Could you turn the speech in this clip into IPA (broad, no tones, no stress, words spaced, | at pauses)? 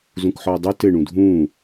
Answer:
zũkħɔʊ̯dˤu tɘ ɳũdʱũː